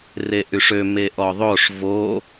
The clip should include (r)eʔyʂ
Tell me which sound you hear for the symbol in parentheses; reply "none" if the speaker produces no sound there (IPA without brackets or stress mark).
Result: r